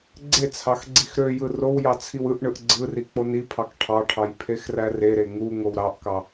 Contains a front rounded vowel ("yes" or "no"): yes